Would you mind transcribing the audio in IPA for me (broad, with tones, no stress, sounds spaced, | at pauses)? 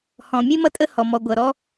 h ɔ̃˨ mʲ e˦ m ʌ˦ tʼ ə˦ h ɔ˨ m ɔ˨ ɡʷ ʌ˨ ɾ ɔ˦